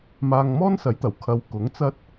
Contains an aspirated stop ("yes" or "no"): yes